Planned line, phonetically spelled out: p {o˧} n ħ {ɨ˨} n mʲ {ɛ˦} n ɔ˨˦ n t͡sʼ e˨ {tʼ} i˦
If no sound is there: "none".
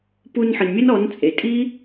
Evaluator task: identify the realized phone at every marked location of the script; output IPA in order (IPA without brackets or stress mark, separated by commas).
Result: u˧, ɨ˨, ɛ˦, tʼ